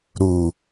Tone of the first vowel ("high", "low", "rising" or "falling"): low